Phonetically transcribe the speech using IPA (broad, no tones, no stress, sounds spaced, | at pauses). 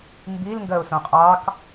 m b i l ŋ ɡ ɜ ʊ̯ s õ qʼ ɑ k